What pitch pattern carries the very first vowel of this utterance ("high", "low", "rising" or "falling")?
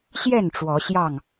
falling